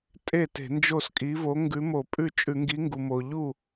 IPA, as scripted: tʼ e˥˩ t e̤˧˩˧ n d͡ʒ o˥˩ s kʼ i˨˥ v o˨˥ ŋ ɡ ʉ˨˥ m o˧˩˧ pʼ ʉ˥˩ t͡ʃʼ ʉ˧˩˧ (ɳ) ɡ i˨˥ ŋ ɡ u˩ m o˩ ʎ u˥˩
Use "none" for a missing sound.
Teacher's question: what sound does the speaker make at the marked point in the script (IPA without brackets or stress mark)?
ŋ